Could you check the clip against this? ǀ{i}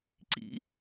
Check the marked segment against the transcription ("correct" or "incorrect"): incorrect